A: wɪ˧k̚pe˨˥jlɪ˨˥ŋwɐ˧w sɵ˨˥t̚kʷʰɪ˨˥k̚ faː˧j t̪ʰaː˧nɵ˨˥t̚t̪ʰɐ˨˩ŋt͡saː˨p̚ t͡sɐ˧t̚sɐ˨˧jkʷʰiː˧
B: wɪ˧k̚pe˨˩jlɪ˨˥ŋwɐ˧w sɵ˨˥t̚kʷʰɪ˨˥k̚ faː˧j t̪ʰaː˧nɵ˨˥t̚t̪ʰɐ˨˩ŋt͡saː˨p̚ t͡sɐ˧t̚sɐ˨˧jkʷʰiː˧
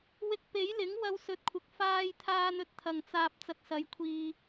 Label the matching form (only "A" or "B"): A